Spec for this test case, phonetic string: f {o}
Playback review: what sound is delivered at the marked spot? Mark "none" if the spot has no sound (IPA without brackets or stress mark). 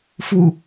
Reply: u